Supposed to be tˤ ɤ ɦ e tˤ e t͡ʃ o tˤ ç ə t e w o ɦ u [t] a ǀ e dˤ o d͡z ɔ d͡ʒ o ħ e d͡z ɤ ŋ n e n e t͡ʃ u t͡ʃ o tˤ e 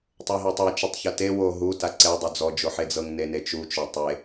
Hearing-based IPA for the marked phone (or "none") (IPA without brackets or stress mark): t